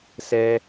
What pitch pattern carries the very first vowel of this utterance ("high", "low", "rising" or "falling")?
high